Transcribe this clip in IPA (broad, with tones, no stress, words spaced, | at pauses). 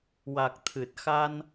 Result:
wa˨˩k̚t̪ʰɨ˨˩t̚xa˧n